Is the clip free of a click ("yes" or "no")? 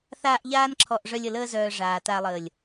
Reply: no